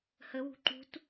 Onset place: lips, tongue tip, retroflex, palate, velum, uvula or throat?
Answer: throat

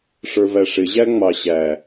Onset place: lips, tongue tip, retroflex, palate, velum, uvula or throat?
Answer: retroflex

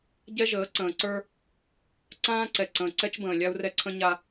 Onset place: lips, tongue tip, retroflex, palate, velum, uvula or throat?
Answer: palate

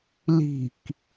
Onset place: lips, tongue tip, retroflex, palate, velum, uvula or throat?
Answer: tongue tip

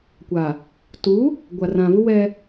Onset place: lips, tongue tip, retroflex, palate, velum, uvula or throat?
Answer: velum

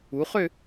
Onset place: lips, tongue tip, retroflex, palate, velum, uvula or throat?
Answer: uvula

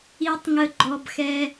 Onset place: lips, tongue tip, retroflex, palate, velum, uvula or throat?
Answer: tongue tip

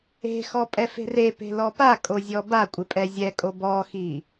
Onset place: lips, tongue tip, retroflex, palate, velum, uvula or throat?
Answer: velum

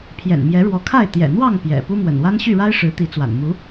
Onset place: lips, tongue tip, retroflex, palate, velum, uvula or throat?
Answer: lips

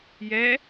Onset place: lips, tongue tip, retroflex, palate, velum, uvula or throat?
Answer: palate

